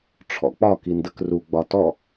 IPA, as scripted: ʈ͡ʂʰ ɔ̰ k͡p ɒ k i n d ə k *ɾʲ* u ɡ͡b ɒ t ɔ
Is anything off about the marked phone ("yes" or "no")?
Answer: yes